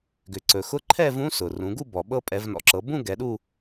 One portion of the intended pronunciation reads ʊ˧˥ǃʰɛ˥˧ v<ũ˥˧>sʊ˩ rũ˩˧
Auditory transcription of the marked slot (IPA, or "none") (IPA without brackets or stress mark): ũ˧˥